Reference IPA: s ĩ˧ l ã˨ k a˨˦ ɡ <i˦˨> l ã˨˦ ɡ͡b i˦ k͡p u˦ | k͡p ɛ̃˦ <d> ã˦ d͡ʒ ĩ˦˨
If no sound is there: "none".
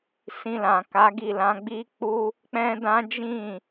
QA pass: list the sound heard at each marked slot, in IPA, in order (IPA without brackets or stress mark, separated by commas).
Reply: i˦˨, d